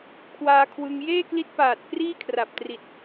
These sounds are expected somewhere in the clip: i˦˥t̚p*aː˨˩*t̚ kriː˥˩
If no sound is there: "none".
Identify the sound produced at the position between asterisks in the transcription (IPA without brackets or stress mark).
aː˨˩